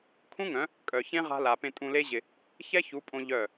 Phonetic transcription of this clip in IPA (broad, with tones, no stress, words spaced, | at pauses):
kʰũ˦ŋœ̃˨˦ | kʼœ˨çẽ˦ʁa̤˧la˨ pẽ˧tʼũ˧le˦ʑɪ˧ | çɛ˦çu˨˦pʼõ˧ ʎœ˦˨